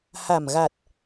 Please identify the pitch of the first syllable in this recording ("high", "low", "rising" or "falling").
low